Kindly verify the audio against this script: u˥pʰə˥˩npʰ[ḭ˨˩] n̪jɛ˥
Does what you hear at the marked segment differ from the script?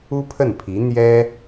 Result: yes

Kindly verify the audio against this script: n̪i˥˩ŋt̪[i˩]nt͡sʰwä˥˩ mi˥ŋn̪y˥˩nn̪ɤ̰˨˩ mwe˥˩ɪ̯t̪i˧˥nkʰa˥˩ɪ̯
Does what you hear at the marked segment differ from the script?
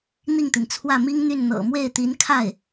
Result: no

